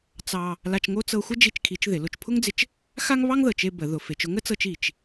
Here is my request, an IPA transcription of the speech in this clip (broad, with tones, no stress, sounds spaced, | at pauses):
t͡s ɑ˧ | l a˧ t͡ʃ ŋ o˥ t͡s ɤ˧ xʷ ə˥ d͡ʒ i˥ t͡ʃ kʰ i˧˥ t͡ʃ ð ɪ˩˧ l ʊ˧ t͡ʃ pʰ ʊ˥ ŋ d͡z ɪ˧ t͡ʃ | x a˥ ŋ β ɑ˥ ŋ ð ɤ˩ t͡ʃ e˧ b ə˩˧ ð ʊ˩˧ f e˩˧ t͡ʃ ʊ˥ ŋ ə˧˥ t͡s ɤ˧ t͡ʃ i˩ t͡ʃ